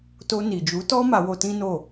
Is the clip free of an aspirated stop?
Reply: yes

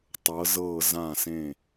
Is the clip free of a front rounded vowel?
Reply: yes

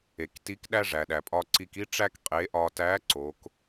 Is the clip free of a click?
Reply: no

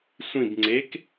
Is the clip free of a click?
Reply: no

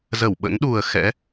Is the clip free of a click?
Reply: yes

